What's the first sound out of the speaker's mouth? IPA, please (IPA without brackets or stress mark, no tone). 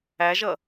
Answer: æ